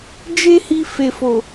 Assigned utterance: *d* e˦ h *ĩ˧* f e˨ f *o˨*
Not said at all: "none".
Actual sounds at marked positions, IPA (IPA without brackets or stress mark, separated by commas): d͡ʒ, i˧, o˨